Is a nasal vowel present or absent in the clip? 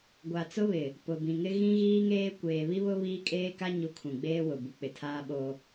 present